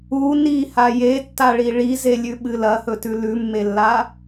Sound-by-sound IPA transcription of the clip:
u n i h a j e tː a ɭ i ɭ i z e lʲ ʉ ɓ ɨ l ɐ h ɵ t ʉ l ʉ mː e lː a

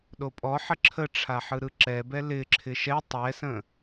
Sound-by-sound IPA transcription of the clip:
ɗ o pʼ ɔ ħ ə ǁʰ ə ʈ͡ʂʰ a ħ ɯ ɾ ɯ ǁ ɛ b ɛ l ɪ ǁʰ ɪ ʃ ɛ tˤ ɛ s ə̃

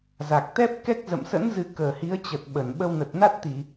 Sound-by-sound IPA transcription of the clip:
z a˨˩ k̚ t̪ ɛ˦˥ p̚ k ɛ˦˥ k̚ z ə̰˧˨ m s ə̰˧˥ n z ɨ˨˦ k əː˨˩ h i˨˦ ə̯ t͡ɕ ə˨˩ t̚ ɓ ə˨˩ n ɓ ə˧ w n ə˨˩ t̚ n a˦˥ t̚ t̪ i˧˩˨

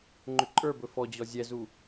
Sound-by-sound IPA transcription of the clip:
ŋ͡ǃ ʏ ǃʼ ə˞ b ɵ f ɔ d͡ʑ ɔ zʲ ɛ z u

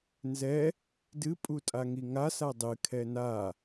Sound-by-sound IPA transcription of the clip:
n z ɛ | d ɨ pʼ u tʼ a ŋ i ŋ a s a dˤ ɨ kʰ ɛ n a

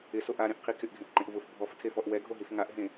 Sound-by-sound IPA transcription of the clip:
ɪ s o ʔ a ɾ ẽ ʔ qʰ i kʰ ɪ ʔ ɡʱ ẽ ʔ ǃ ẽ ʔ v ʊ f bʱ ɔ f tʰ e f ɔ ʔ w ɛ ɡʱ o ɦ i f ŋ a ʔ ɦ ẽ

